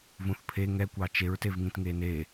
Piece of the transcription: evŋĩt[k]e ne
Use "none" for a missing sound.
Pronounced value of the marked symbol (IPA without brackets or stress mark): ŋ